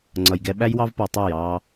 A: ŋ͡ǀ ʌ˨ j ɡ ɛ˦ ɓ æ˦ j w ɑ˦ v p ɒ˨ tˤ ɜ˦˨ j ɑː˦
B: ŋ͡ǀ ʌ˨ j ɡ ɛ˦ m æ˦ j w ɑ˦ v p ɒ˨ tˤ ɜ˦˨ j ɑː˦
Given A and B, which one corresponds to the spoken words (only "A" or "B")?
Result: A